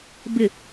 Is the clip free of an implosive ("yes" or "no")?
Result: yes